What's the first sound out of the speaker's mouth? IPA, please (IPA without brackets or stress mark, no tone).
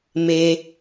m